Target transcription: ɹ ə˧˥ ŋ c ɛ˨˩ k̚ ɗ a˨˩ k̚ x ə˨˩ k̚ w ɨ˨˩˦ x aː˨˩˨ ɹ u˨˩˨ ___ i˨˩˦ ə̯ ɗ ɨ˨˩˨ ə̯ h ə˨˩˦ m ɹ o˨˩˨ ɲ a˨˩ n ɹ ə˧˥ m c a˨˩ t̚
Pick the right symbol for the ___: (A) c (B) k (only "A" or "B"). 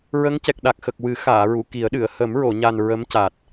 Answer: B